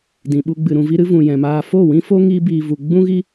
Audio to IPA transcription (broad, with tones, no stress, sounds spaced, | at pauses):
d ĩ˨ ɓ u˧ ɡ͡b ɨ˨ ɾ ũ˨ v i˧ ɾ ɨ˧ v ũ˨ j ɛ̃˨ m aː˧ f o˦˨ w ĩ˦ f o˦ ŋ iː˦ b iː˧ v u˧ ɡ͡b ũ˦ ɣ i˦